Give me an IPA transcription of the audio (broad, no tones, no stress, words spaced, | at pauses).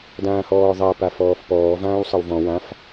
dãːhɔːðˤa pafɔːfpɔː vãːwsˤɤwvɔ̃ wãf